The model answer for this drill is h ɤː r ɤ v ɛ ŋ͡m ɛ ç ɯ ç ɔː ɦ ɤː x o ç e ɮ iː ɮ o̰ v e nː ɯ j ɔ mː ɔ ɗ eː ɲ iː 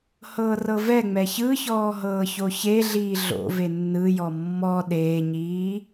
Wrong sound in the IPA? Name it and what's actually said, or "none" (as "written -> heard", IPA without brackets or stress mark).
x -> ç